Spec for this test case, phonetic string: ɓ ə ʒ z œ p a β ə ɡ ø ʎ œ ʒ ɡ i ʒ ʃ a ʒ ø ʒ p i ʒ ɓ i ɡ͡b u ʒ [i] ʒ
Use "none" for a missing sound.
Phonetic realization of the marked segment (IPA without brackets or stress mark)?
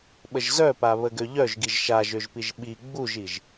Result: i